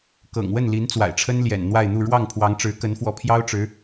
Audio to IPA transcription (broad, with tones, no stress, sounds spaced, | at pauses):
k ɤ̰˨˩ ŋ w ə˥˩ n l i˧˥ n t͡s w a̰˨˩ ɪ̯ ʈ͡ʂʰ ə˥ n l j ɛ̰˨˩ n n̪ w a˥˧ ɪ̯ n̪ u˥˧ ɻ w ɑ˥˩ ŋ pʰ w ɑ˧˥ ŋ ʈ͡ʂ ɻ̩˧˥ k ə˧˥ n f w ɔ˧˥ pʰ j ɑ˥ ʊ̯ ʈ͡ʂ ɻ̩˧˥